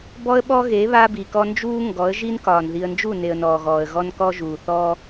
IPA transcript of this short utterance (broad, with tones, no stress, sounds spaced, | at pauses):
b ɔ˦ ə̯ ɓ ɔ˦ ɣ e˨˦ β a˦ b i˨ k ɔ˦ n d͡ʒ uː˦ ŋ ɡ ɔ˨˦ ə̯ ʒ i˦ n k ɒː˨ n ð i˨ ə̯ n d͡ʒ u˦˨ n e˨ ə̯ n ɔː˨ ɣ ɔː˨ ə̯ ɣ ɔ˦ n k ɔ˦ ʒ uː˨ θ ɔː˦